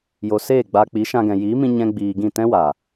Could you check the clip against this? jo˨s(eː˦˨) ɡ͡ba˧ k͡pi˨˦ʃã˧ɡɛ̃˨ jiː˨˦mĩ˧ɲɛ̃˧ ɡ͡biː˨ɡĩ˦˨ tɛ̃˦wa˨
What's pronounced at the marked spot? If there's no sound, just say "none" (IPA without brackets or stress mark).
eː˦˨